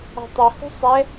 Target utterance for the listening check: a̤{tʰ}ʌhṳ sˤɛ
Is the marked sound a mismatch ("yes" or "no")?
yes